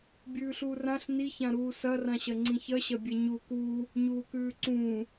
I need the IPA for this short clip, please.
bʲ ʉː ɬ uː r ã ɬ n i ç ã ɾ uː s ɐ r ã ɕ ɐ ŋ͡ǀ ĩ ç ɐ ɕ ɐ bʲ e ɲ u k uː | ɲ uː k ʉː ǀ ũː

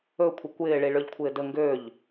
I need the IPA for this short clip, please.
ɵ kʷʰ ə kʷ ɪː ɭ i ɭ ø ʎ kʷʰ ɪː d ə ŋ ɡ ø ʎ

